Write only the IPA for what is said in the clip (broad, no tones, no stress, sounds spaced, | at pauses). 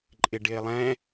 ǃʼ ɪ ɖ ɪː lˠ ɛ̃